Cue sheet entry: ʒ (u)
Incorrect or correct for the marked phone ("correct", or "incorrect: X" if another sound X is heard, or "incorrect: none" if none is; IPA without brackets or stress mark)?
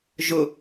incorrect: ʊ